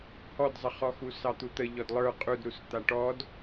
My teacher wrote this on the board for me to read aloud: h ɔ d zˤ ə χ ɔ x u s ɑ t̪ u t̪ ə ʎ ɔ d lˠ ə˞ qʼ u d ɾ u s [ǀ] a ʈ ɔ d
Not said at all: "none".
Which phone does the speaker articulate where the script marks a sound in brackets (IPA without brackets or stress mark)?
t̪